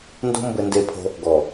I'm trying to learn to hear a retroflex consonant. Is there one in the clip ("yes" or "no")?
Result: no